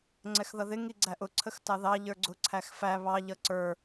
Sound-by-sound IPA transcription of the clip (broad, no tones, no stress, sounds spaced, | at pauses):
ŋ͡ǀ ɛ x ð ʌ ð ɪ ŋ i ɡ͡ǀ æ ʔ ʊ ǀʰ ə x t ɑ ð ɑ ʎ ə˞ ɡ͡ǀ ʊ ǀʰ æ x f æ β ɑ ʎ ʌ ǀ ə˞